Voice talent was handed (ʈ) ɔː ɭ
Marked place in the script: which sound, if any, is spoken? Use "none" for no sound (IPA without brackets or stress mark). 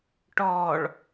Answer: ʈ